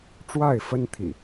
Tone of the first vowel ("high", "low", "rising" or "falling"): falling